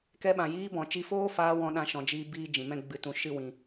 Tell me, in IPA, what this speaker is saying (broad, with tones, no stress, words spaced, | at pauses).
kɛ˧ɓã˨jiː˧bɔ̃˨ t͡ʃi˧foː˦faː˧ wɔ̃˧ɗã˧ ʃɔ̃˧d͡ʒiː˦biː˦ d͡ʒĩ˨mɛ̃˦ ɡ͡bɨ˧tũ˧ ʃɨ˦wĩ˧